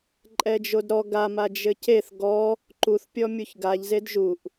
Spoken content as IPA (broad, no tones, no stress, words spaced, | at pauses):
ǃʼɛd͡ʒodɾɔ ɡama d͡ʒɘceθ ɡɔ | ǃuθpʲɔmʲuç ɡaʎzed ʒuʔ